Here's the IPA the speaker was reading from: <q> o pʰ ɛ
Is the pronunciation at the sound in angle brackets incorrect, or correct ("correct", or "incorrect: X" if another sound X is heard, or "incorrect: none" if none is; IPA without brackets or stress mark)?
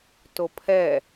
incorrect: t